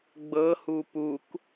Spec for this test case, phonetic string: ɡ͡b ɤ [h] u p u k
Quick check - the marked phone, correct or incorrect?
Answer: correct